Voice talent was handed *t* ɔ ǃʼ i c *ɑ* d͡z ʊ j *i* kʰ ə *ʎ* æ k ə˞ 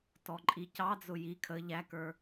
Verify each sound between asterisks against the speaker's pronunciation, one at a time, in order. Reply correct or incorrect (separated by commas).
correct, correct, correct, correct